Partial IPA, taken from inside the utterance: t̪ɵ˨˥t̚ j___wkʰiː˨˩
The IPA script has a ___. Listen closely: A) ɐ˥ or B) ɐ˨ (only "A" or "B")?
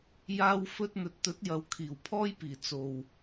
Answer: B